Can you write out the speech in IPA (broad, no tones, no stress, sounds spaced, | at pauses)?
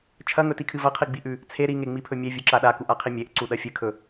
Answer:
t͡ʃʰ ɐ ŋ ɵ t i kʰ ɨ v ɐ qʰ i ɡ͡b i ʔ ʉ | t͡sʰ e ɾ i ŋ e ŋ͡m i pʰ ɵ mʲ e vʲ u ǁ a ɗ a k u ʔ a qʰ i mʲ e ʔ ǀ u ɗ ɐ fʲ ɨ kʰ ɵ